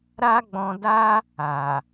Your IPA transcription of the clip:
ɾ a˦ ɡ͡b ɔ̃˧ d a˦ | a˨

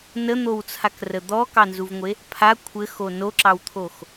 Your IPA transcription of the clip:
n ə n̪ o w t͡sʰ a k r ə d̪ ɔ k ɑ n z u v ŋʷ e | pʰ a kʷʰ ɘ x o n o ǁ ɑ w t̪ʰ o x

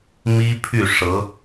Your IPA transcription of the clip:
m i˥ pʰ y˥˩ ʂ ɤ˧˥

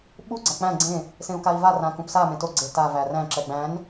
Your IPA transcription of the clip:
ɓ u ɡ͡ǀ a k͡p æ̃ ɡ͡ǀ ẽ | s ẽ u̯ k a i̯ v a r ã k ũ p s a m ẽ t o ɡ͡ǀ e t a v æ r æ̃ ǁ ɛ ɡ͡b æ̃ n

